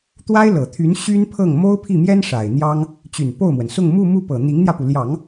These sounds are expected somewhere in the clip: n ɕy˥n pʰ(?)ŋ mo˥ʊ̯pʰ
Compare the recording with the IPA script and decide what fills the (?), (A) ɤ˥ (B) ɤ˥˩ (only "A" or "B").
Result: B